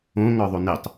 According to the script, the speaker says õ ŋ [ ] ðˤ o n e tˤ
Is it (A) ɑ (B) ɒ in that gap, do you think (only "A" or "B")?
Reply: B